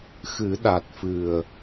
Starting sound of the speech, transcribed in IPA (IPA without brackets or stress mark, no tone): x